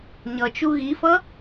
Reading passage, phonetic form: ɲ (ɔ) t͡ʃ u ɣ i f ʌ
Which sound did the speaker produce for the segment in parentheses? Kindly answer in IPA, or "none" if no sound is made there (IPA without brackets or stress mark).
ʌ